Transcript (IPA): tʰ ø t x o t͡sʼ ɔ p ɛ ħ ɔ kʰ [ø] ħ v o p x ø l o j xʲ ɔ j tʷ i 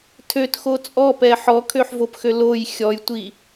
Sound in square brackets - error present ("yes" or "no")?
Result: no